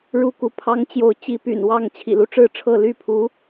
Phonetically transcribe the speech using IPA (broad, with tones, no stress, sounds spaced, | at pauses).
ɻ u˥˨ k u˨˦ pʰ ɑ˦ ŋ t͡ɕ j o˨˦ ʊ̯ t͡ɕ i˨˦ p y̰˨˩ n w ɑ˥˨ ŋ t͡ɕʰ ḭ˨˩ l u˦ ʈ͡ʂ ɻ̩˥˨ ʈ͡ʂʰ ɤ˥˨ l y˥˨ pʰ u˨˦